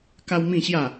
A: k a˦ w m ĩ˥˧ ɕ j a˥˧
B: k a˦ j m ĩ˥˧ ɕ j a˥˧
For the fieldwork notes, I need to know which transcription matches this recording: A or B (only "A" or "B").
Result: A